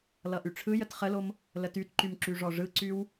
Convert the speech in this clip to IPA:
l ʌ ʔ y ʈ͡ʂʰ ɯ j ə t χ ə l o m | l ə t y t ǃ y m ǁ y ʐ ɔ ʐ ɯ ǀ y w

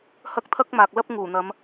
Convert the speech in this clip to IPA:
h ɐ˥ k̚ t̪ʰ ɐ˥ k̚ m aː˨ k̚ l ɐ˥ p̚ ŋ uː˨˩ n̪ ɐ˨˧ m

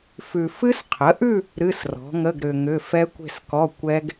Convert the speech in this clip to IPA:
f ʉ˨ f ɨ˦˥ s qʰ ə˩˥ ʔ ʉ˥˧ | ɾ ɨ˧˥˧ s r ɔ̤˩˥ ŋ ə˧˥˧ ɡ ɾ ʏ˨ ŋ ʏ˧˥˧ f ɛ˦˥ kʷ e̤˥˧ s k ɔ˧˥˧ kʷ ɛ˦˥ ɡ

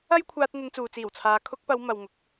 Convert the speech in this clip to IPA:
ɐ˥ j kʷʰ aː˧ t̚ n̪ ɐ˧ n t͡s uː˨ t͡s iː˨˩ w t͡sʰ aː˨˧ kʰ ʊ˧ k̚ p ɐ˨˧ w m ɐ˨ w ŋ ʊ˨ k̚

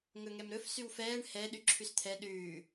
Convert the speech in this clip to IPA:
ŋ ɵ ŋ ɛ m ɾ ɵ f s y w f ɛː ɳ h ɛ ɗ y ǁʰ y s t̪ʰ ɛ ɗ ʉː

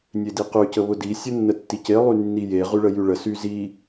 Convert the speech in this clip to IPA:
nʲ e d i q y c ə β ʊ d i sʲ ə nː ə tː i c e lˠ y nː i j e ʁ y ɭ ə j y ɭ ə s y z i

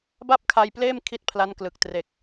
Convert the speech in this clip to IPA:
b a˥˩ p̚ kʰ a˧ j p l eː˥˩ m kʰ i˥˩ t̚ pʰ l a˦˥ n k l ɯ˨˩ k̚ t r e˨˩ k̚

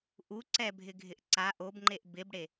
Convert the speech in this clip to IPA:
ʔ u ǀ ɛ bʱ ɪ ɡʱ ɪ ʔ ǀ a ʔ o b ŋ͡ǃ e ʔ b ɪ b ɽ e

